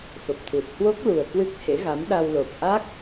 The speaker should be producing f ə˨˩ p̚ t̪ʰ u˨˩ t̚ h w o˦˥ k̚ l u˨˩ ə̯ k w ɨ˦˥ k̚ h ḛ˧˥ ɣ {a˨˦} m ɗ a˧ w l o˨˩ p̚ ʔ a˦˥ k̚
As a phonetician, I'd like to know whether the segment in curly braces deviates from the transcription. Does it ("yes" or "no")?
no